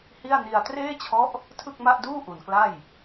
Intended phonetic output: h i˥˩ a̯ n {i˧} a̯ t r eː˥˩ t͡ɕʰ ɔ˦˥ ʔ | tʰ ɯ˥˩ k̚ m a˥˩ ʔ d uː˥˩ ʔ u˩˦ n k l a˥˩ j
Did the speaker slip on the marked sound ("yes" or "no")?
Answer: no